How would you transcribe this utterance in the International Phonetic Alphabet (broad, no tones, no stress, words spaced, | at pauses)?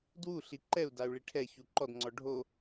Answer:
dwu ɬiǃɛu̯dau̯ ɭiʈʰɛçu ǃɔdŋ͡ǀɔ ɖʱo